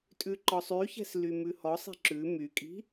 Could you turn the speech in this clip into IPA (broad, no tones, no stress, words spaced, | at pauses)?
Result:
tʼʉǃɔsˤyçɛ̤s lymʉhɔsˤi̤ ǁʉ mykʼi̤